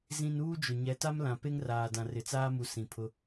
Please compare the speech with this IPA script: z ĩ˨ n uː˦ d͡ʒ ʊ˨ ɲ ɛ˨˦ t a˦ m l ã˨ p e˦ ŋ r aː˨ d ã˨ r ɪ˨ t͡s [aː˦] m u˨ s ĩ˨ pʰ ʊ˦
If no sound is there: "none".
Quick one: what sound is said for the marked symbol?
aː˦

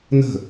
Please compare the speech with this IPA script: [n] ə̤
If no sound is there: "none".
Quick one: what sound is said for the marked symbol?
n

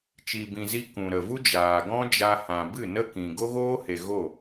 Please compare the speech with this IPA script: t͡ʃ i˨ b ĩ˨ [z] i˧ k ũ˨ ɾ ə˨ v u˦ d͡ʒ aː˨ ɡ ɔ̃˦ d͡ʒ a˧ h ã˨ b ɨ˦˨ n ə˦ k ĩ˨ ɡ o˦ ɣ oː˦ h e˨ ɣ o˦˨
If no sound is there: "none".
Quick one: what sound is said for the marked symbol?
z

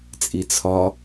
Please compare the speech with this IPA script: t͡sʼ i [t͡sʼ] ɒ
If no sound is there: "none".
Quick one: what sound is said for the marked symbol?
t͡sʰ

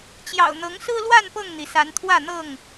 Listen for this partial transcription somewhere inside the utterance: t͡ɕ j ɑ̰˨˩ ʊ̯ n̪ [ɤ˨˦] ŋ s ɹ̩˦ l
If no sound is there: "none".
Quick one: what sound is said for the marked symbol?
ɤ˨˦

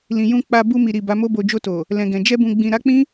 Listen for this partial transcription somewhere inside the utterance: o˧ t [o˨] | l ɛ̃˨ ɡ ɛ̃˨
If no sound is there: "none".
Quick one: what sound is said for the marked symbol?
o˨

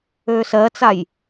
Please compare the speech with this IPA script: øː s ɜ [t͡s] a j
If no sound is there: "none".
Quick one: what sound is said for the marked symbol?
t͡s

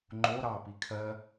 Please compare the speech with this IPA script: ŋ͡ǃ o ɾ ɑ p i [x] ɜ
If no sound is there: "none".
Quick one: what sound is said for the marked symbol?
kʰ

